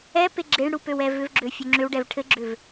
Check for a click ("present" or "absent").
present